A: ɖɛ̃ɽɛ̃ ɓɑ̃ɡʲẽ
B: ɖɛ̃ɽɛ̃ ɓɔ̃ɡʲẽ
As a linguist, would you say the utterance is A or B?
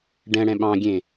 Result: A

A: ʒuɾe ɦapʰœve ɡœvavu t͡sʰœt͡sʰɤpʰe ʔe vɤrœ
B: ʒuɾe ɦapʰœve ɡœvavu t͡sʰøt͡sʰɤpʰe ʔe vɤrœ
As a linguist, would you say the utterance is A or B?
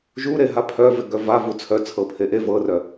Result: A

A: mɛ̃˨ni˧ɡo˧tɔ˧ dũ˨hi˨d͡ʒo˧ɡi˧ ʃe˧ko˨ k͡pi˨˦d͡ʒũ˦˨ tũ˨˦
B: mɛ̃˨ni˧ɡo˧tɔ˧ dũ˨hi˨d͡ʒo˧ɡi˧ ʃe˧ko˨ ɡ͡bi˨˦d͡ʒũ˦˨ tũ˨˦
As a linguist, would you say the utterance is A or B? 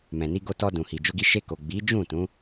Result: B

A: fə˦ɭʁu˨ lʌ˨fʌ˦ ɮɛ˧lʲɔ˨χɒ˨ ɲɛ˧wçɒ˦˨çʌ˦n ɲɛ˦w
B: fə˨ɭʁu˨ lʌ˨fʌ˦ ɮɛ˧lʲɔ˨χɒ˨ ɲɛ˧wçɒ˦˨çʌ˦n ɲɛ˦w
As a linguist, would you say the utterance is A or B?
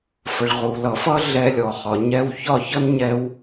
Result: B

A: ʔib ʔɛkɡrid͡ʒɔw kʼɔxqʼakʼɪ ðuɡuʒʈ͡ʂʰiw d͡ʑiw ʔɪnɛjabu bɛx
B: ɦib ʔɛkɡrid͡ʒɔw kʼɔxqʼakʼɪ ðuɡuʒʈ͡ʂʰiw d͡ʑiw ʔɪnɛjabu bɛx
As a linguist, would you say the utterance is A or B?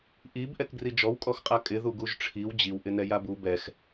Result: A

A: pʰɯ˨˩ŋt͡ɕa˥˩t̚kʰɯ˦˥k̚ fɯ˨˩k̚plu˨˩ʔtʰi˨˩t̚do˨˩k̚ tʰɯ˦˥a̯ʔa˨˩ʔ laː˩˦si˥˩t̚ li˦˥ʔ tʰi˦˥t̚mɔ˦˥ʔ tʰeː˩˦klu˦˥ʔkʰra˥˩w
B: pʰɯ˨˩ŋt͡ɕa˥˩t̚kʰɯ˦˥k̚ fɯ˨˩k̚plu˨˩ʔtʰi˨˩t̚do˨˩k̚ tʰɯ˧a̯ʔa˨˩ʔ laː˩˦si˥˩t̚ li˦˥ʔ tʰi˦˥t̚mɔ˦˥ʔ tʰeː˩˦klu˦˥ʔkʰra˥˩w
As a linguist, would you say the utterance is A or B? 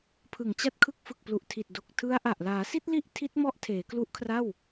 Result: A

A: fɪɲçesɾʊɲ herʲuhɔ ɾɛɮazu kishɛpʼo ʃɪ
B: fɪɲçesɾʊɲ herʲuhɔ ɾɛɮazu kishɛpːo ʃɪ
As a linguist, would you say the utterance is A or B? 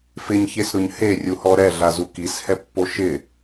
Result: B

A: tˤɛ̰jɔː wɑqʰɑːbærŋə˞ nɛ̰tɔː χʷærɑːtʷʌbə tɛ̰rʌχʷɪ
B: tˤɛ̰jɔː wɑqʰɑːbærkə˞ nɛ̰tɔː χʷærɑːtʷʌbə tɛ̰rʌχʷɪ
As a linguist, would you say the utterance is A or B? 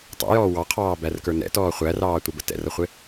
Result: B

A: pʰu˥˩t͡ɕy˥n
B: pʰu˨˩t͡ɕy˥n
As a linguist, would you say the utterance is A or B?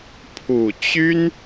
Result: B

